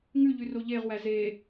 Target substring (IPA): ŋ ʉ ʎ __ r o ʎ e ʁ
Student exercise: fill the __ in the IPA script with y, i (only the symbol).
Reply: y